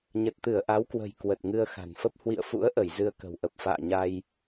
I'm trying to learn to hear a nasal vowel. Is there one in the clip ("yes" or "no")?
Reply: no